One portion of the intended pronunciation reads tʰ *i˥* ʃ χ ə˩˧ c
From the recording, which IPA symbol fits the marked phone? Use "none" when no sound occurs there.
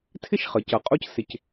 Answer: ɪ˥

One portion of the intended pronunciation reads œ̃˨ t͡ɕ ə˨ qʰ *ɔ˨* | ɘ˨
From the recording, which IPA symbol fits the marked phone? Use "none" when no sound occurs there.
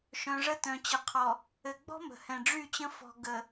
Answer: ɔ˨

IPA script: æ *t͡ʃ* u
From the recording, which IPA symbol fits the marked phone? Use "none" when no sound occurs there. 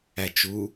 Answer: t͡ʃ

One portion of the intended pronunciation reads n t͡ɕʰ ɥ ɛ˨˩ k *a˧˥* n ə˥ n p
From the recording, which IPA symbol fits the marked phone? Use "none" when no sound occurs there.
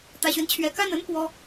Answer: a˥˩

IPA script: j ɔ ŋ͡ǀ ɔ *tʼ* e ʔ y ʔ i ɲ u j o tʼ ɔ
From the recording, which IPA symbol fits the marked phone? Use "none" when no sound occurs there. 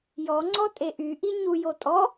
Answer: tʼ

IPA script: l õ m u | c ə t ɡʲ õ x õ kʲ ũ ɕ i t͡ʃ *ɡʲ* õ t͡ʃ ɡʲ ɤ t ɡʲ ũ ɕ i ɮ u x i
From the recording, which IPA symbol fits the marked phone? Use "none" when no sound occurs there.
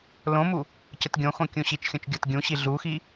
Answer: xʲ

